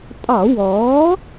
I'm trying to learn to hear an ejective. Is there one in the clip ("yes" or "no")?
yes